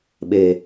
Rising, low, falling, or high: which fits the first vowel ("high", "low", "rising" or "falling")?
low